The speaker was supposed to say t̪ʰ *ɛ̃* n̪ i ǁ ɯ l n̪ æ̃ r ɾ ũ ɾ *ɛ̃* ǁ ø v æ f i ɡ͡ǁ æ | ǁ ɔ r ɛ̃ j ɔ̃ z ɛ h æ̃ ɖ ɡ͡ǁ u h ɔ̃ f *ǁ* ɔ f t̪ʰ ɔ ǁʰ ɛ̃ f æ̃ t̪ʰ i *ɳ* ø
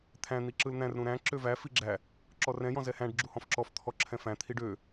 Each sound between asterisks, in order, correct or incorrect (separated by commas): incorrect, incorrect, correct, incorrect